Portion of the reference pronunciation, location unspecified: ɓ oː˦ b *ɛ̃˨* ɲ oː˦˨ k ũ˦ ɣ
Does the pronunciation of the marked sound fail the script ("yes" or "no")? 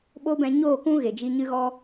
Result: yes